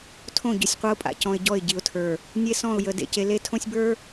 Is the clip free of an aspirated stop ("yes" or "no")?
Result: no